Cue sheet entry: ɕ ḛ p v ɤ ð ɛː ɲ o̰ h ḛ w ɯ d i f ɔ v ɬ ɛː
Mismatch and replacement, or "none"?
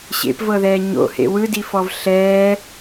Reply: none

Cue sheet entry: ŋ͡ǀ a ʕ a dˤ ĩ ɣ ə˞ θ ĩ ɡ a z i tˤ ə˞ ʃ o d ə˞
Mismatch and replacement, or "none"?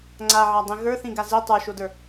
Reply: none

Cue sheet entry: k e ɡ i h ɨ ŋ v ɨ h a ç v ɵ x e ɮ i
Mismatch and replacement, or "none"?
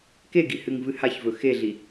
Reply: none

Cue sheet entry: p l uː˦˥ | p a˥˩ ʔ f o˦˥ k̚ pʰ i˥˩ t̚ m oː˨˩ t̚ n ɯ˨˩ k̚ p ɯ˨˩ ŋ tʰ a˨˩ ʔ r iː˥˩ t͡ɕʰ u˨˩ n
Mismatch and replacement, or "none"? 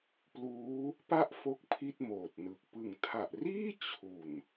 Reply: none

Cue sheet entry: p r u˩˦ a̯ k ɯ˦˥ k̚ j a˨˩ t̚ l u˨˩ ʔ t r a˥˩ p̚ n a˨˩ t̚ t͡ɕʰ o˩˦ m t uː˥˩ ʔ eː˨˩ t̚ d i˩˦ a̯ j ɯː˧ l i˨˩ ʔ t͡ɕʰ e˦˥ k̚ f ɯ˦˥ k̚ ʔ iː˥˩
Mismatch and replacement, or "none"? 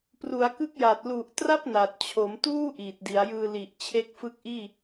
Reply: eː˨˩ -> iː˨˩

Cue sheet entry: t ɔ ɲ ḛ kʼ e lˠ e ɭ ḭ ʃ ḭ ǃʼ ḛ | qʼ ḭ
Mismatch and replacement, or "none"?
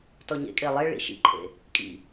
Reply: qʼ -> kʼ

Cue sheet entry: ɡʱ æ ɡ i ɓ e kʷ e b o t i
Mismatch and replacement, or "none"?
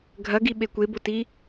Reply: æ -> ɐ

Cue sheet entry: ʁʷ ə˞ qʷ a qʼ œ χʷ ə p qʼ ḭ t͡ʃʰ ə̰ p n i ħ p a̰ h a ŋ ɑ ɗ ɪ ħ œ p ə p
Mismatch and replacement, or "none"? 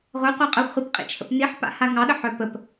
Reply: ɪ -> ə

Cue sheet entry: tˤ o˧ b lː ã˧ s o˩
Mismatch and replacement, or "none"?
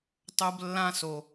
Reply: none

